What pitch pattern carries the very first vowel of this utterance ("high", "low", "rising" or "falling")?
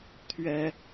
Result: high